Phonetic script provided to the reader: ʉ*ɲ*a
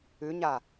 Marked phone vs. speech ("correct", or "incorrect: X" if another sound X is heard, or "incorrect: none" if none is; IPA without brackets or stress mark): correct